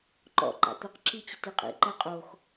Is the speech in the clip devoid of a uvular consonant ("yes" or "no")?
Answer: no